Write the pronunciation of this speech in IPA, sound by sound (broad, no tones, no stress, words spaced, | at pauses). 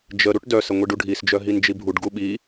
d͡ʒə ɾuʈdœsə ŋʷiɖuɖʱisd͡ʒœ ɦind͡ʒibʱuɖɡu ɓi